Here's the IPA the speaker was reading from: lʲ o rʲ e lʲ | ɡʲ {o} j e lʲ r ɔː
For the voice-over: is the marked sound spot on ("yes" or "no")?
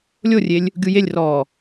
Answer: no